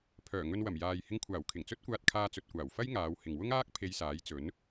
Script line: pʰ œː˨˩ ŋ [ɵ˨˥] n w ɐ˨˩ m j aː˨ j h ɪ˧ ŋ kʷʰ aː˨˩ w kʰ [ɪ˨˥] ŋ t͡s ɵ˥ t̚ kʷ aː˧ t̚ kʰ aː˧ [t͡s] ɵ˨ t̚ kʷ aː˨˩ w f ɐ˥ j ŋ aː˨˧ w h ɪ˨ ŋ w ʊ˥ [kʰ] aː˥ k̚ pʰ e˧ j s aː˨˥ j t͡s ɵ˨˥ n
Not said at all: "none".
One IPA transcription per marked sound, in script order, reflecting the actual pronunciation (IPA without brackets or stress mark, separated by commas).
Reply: ɵ˧, ɪ˨˩, t͡s, ŋ